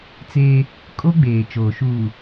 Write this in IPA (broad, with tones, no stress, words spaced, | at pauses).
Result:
t͡seː˦ | kʼo˦ ɡ͡beː˨t͡ʃoː˨ʃuː˨